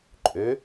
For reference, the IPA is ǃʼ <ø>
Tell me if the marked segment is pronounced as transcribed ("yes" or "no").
yes